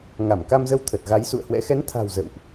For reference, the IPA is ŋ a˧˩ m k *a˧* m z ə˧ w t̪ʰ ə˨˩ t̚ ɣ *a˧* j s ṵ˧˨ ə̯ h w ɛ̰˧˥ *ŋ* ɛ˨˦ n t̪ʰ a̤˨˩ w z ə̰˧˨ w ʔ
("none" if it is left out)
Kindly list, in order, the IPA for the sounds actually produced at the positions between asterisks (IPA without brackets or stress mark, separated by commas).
a˧, a˨˦, x